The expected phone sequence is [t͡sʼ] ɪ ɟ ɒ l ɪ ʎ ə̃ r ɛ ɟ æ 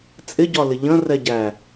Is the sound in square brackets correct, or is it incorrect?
correct